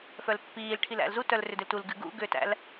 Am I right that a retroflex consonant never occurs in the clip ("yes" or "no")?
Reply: no